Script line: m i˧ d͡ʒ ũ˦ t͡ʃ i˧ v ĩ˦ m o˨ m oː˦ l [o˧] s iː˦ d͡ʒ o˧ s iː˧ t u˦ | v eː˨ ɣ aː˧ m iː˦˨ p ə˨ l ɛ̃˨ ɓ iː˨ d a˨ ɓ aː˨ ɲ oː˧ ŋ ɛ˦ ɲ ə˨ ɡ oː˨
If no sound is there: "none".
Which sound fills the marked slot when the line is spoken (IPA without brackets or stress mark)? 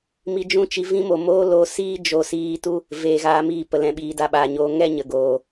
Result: o˧